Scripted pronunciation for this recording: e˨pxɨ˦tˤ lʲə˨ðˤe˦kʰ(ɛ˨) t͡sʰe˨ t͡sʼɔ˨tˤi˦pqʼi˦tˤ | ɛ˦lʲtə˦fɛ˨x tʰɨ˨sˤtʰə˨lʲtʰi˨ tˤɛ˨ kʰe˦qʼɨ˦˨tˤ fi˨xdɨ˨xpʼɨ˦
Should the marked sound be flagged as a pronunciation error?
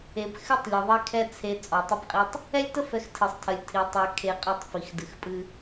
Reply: yes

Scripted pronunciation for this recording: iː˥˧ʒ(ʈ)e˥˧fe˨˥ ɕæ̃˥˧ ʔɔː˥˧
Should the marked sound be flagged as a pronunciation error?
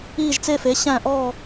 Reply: yes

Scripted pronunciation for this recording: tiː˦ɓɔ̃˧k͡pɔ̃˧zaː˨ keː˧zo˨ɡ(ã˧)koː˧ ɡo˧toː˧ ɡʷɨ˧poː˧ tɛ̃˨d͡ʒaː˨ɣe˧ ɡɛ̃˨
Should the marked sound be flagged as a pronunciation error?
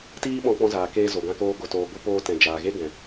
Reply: no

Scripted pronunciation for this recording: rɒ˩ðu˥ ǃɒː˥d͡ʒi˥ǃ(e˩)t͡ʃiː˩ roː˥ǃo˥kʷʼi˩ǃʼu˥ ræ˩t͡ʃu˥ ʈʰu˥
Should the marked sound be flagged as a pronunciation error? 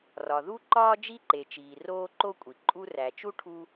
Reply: no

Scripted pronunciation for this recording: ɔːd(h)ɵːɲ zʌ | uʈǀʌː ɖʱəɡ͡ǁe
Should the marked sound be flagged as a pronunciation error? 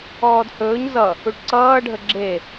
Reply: no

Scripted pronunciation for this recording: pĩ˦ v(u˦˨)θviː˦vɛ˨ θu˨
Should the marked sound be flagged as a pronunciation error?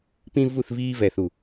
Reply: no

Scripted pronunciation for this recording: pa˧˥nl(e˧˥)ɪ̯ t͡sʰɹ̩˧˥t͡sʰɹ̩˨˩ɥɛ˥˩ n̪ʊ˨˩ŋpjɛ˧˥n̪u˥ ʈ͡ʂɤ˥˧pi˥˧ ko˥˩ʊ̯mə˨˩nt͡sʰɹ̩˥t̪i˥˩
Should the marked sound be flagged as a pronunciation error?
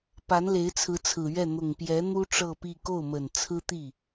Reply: no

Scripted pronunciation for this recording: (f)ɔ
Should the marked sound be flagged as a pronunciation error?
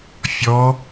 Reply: yes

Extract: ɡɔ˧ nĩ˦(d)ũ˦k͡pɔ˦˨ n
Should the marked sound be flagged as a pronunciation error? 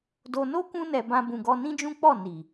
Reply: yes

